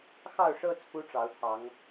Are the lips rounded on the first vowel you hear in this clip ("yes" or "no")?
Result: no